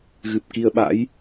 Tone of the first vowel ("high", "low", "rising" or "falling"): low